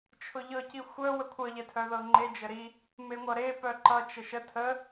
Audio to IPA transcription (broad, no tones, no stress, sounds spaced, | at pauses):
t͡ʃʰ ʊ ʎ ɤ c i xʷ œ w ə kʷʰ ʌ ʎ ɛ tʰ œ ð ɤ ŋ͡ǃ e d͡ʒ ə ɾ i | m e ŋʷ ʌ ɾ e p œ ǃ ʌ t͡ʃ ə ʃ ə tʰ ə